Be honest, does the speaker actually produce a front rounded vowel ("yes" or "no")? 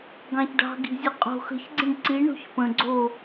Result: no